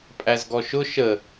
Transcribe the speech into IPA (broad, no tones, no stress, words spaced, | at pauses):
pʼæzɡɔʃʊ ʃə